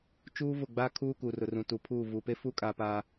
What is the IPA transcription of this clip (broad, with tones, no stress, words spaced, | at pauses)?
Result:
t͡ʃuː˦ vʊ˦˨ɡ͡baː˦ kʰuː˦ kuː˨rʊ˨rũ˨ tu˨pʰuː˦˨ vu˨pe˦fu˦ kʼa˦paː˦